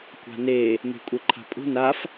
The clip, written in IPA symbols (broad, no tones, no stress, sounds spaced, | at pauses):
kʷ a̤ n e | m e̤ kʷʼ e ǃʰ a̤ pʼ ṳ n a f